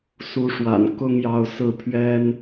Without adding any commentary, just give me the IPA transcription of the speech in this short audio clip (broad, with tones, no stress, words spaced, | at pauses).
su˨˦ʂwa̰˨˩nkʊ˦ŋ jɑ˦ʊ̯sɹ̩˥˨pʰɥɛ˦n